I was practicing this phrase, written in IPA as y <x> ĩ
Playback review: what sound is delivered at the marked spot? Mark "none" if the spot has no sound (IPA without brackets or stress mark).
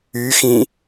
x